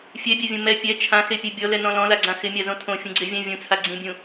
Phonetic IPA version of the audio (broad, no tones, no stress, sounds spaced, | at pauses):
fʲ ɛ bʲ a vʲ õ m ɛ pʲ ɛ t͡ʃʰ ã x e pʲ ɛ bʲ ɔ l ɛ n ɔ̃ l ɔ̃ l a ɡ͡ǀ ã x ɪ mʲ a z õ tʰ õ fʲ ũ ɡ͡ǀ e vʲ ã vʲ ũ t͡sʰ a ɡ͡ǀ ĩ bʲ ũ